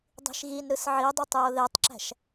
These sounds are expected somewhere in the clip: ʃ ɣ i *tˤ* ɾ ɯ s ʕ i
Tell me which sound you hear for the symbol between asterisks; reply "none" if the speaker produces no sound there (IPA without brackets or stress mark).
n